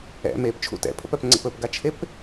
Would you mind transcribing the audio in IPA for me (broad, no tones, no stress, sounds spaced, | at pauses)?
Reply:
ɛ̰ m e p t͡ʃʰ ṵ t ɛ̰ pʰ ə̰ p œ p ŋ͡ǀ ə̰ p ɵ p ɡ a t͡ʃʰ e p